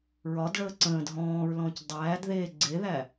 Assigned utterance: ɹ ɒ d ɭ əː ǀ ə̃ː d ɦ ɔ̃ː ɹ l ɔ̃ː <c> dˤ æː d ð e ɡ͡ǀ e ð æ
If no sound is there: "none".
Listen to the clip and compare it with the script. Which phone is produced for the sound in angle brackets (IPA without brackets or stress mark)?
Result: c